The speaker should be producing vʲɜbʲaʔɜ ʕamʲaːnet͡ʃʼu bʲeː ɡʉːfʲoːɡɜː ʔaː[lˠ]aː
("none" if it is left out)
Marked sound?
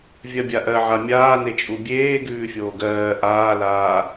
l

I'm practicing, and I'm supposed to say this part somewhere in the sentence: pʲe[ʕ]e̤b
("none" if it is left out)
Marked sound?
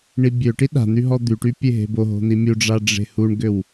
ɦ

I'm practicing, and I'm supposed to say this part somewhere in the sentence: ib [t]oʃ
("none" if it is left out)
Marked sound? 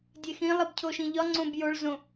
cʰ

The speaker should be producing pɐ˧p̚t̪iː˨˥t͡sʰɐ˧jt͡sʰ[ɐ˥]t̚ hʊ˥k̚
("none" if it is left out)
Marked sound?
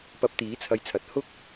ɐ˨˥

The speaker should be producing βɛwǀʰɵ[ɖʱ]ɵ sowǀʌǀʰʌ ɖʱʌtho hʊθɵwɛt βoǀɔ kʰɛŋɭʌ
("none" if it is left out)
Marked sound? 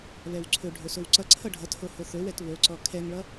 ɖʱ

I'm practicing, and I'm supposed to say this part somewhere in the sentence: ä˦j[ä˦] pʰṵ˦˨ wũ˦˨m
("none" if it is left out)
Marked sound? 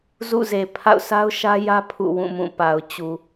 ä˦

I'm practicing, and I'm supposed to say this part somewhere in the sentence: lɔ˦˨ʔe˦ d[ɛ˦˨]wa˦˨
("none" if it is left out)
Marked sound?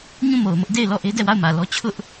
ɛ˦˨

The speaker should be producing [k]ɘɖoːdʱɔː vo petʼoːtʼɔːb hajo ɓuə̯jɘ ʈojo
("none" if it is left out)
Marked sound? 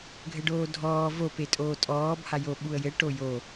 ɡʱ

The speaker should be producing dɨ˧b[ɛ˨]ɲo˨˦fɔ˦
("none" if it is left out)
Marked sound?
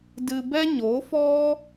ɛ˦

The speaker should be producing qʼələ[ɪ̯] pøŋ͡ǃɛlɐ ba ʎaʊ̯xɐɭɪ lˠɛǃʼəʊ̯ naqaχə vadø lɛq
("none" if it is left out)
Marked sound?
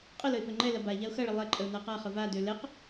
ɪ̯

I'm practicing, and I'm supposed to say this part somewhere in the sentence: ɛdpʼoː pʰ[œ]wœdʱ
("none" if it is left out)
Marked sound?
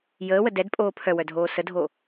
œ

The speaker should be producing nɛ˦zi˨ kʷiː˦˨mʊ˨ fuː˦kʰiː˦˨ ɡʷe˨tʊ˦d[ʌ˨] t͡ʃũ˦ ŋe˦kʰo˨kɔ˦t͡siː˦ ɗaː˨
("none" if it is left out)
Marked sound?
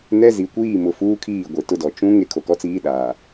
ɔ˨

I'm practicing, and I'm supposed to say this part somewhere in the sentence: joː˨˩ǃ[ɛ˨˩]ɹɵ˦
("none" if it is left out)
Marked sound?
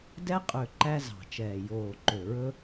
ø˨˩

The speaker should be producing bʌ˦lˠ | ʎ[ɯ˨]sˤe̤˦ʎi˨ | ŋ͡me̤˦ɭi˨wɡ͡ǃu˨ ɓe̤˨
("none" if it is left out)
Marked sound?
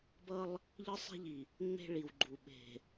ɯ˦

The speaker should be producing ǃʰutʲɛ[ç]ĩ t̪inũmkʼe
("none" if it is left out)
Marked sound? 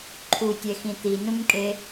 x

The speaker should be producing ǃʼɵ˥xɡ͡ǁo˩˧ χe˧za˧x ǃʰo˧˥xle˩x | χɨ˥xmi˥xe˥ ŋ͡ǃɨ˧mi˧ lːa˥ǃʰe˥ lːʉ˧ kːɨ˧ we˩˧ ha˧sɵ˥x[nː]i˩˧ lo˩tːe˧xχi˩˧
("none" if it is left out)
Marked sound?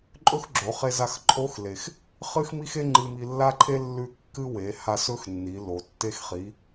nː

